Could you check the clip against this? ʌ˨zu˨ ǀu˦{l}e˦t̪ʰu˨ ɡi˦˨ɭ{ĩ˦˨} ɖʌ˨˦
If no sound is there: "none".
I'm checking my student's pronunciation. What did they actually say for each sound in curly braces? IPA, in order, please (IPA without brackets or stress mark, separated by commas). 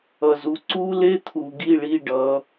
l, i˦˨